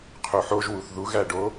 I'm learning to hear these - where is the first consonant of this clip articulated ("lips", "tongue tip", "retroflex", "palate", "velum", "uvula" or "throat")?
uvula